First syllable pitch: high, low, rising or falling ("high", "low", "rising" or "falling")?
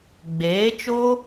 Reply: rising